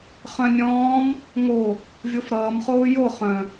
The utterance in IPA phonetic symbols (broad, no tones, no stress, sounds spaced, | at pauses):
χ œ̃ nʲ ɔ̃ː m | ŋ o | vʲ o f ɾ ʌː m χ oː j o χ œ̃